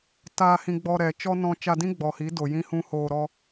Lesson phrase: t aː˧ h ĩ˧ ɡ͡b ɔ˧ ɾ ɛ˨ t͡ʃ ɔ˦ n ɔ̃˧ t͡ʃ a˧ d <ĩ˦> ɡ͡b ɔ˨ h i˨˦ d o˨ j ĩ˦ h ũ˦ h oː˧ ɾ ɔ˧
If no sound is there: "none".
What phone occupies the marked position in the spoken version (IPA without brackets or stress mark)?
ĩ˦